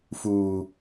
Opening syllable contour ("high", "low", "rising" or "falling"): high